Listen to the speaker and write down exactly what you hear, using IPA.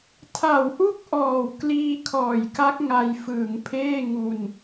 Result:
tʰ a˨˩ w ʔ u˥˩ k̚ ʔ ɔː˨˩ w k l iː˧ kʰ ɔː˨˩ j k a˦˥ k̚ ŋ a˧ j f ɯː˩˦ ŋ pʰ eː˥˩ ŋ u˧ n

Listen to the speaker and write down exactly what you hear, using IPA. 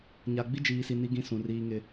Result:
ɲ a˨ ɡ͡b i˦ d͡ʒ iː˨ s i˨ n i˦ ɡ ĩ˦ s ũ˨ r iː˦ ŋ ɪ˦

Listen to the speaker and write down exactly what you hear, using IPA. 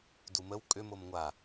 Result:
d u m ə w kʼ ʏ m o m ŋʷ a

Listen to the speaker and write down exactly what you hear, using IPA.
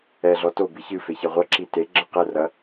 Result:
ɛ ɮ ɔ t o b i ç ɨ f e ç ɛ ʁʷ ɐ ǁ i t e ɡ͡ǁ ɐ q ɛ r ɐ

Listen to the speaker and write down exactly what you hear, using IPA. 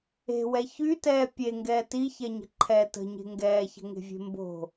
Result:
e̤ w ɛ ç y t ɛː pʲ e ŋ ɡ ɛː t i ç ɛ ɲ ə̤ ǃʰ ɛ t ə̤ ɲ e̤ ŋ ɡ ɛː ç ə̤ ŋ e̤ vʲ e̤ m b o̤

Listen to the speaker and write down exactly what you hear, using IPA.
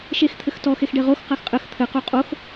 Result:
ʃ e x t̪ʰ ɘ x t ɔ x e x ɖ e ʁ o x q a x qʼ ɘ x t̪ʰ ɘ q u qʼ o x

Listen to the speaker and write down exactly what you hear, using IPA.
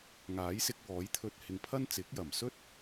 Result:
ŋ aː˨˥ j s ɪ˧ k̚ w ɔː˨˥ j t̪ʰ ɵ˧ t̚ h ɪ˨ ŋ pʰ ɐ˥ n t͡s ɪ˨˥ k̚ j ɐ˨˩ m s ɵ˥ t̚

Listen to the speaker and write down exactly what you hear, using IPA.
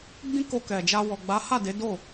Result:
ɡ͡b ĩ˦ k o˧ k ɛ˨ d͡ʒ a˧ w ɔ˨ ɡ͡b a˨˦ h a˦˨ d e˨˦ d o˦˨

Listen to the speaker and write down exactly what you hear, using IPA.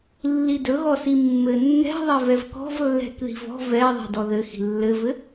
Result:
lː i d ɵ ɣ ɔ s i mː ɘ nː ɛ̤ ðˤ ɛ v ɛ v k ɔ̤ v lː ɛ̤ k ð i̤ v ɔ̤ v ɛ ðˤ i̤ d ɔ ð ɘ x i̤ lː ɘ v ɘ

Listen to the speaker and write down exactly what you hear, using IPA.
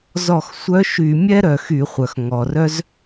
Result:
z ɔ˧˩˧ x sʷ œ˧˥ ʃ y˧˩˧ mʲ ɛ˥ ɾ œ˩ x y˧˩˧ χʷ œ˩ x ŋ ɔ˩ r œ˥ z

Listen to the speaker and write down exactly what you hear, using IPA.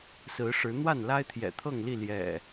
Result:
s ɹ̩˨˦ ʂ ɻ̩˨˦ n̪ w a˥˨ n l a˦ ɪ̯ t̪ʰ j ɛ̰˨˩ t̪ʰ ɤ˥˨ ŋ l i˥˨ l j ɛ̰˨˩

